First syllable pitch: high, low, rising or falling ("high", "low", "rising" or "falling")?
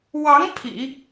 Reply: rising